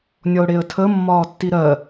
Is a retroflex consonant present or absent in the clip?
present